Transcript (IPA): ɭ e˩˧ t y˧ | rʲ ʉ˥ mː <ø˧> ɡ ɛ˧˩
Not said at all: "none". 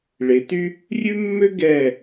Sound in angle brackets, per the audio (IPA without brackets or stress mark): ø˥